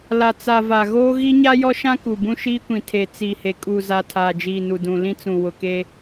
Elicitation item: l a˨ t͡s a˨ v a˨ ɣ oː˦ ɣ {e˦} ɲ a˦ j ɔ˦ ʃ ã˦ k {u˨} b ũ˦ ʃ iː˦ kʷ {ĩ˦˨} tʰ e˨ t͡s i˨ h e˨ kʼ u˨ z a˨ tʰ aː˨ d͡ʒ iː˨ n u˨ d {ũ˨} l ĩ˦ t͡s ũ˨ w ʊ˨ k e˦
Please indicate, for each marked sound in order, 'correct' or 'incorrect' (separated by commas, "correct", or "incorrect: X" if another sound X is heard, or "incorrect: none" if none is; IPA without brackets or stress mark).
incorrect: i˦, correct, incorrect: ĩ˨, correct